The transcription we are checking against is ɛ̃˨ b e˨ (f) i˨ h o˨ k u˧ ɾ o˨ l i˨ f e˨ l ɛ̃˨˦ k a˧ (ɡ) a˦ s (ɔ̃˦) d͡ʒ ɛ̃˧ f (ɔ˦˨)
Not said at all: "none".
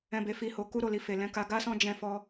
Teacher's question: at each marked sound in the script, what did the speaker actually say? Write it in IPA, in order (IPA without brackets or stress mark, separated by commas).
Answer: f, ɡ, ɔ̃˦, ɔ˧